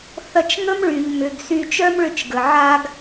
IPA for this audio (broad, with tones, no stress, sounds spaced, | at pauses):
θ ɐ˧ t͡ʃ ŋ ə˦ m ɭ y˨ ʎ m ʏ˨ ɡ s y˧ t͡ʃ œ˦ m ɭ ʏ˧ t͡ʃ ɡ ə˨ ʕ a˧ ɡ